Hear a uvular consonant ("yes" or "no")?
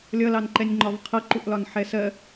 yes